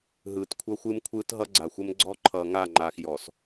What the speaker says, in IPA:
ɦ ɯː˨ t kʷʰ ʌ˦ xʷ ɨ˦ m kʷʰ ɯː˦ t ɦ ʌ˦ ɡ͡ǀ a˨ xʷ ə˦ m ɡ͡ǀ ɔ˦ ǃʰ ʌː˨ ŋ a˦˨ ŋ͡ǃ aː˨ x j ɔ˨ s

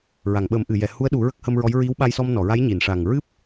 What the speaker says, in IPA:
ɹ a˨˩˨ ŋ ɓ ə˨˩˦ m ʔ ɨ˨˩˨ j ɛ˨˩˨ h u˧˥ ə̯ ɗ u˨˩˦ ɹ ə˦˥ k̚ h ə˧ m ɹ ɔ˧˥ j ɹ i˧˥ w ɓ a˧ j s ɔ˧ m n ɔ˨˩˨ ɹ a˧˥ j ɲ i˨˩˨ n ʂ a˨˩ ŋ ɹ ɨ˦˥ p̚

